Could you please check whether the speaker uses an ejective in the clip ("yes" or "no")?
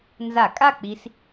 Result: yes